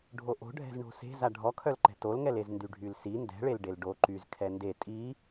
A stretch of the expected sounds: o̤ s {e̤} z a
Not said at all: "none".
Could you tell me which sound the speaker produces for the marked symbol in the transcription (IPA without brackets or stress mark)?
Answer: e̤